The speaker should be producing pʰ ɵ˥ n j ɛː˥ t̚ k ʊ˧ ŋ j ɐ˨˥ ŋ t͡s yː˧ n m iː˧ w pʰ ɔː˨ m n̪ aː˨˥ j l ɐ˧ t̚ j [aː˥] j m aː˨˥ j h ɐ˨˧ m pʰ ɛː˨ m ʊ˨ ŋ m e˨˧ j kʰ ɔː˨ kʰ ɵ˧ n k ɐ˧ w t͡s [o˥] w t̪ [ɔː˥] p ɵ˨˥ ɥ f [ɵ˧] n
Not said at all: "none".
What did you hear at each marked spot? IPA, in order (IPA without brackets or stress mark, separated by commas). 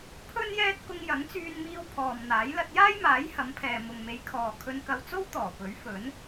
aː˥, o˥, ɔː˨˩, ɵ˨˥